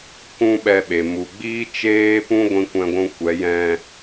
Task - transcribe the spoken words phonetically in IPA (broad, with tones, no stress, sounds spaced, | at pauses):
k ũ˦ ɓ ɛ˧ ɓ e˨ m u˨ ɡ͡b iː˦ t͡ʃ eː˦ p ũ˦ ɡʷ ĩ˧ kʷ ɛ̃˧ ɡʷ ũ˧ kʷ ɛ˨˦ j ɛ̃˧